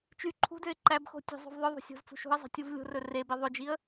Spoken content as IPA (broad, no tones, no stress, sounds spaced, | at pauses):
t͡ʃ y ǃʰ ṳ d ø ɪ̯ ǃ æ b x o̤ tʲ o̤ zˤ o̤ v ðˤ œ ðˤ o̤ sʲ o̤ z t͡s ṳ ʃ ṳ ə̯ zˤ i̤ tʲ u v lʲ o̤ r ɵ r e b i ðˤ ɵ d͡ʒ i ə̯